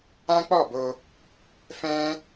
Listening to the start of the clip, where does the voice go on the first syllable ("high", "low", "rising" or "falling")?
high